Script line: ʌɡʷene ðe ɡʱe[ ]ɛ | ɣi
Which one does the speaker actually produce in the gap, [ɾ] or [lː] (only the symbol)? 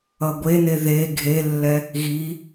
lː